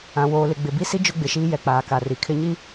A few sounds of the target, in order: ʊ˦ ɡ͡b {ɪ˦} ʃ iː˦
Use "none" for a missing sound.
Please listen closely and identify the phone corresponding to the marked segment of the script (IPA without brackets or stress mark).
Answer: ɪ˨